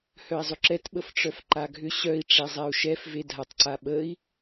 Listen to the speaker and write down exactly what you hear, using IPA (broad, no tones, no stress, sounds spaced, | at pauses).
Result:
h œ i̯ zˤ ʏ ǁ ɛ t ɓ ə f ʈ͡ʂ œ f ǃ a ɡʱ ʏ ɕ œ i̯ ʈ͡ʂ e zˤ ɛ u̯ ʃ ɛ f v e dʱ a tˤ ǀ a ɓ ə i̯